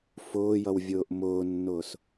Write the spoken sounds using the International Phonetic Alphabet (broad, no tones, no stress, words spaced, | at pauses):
fʊːjʌw vʲʊːʔmʊːnːʊːs